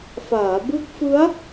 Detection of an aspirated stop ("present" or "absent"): absent